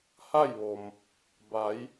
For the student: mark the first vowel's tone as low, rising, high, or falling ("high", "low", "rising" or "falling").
falling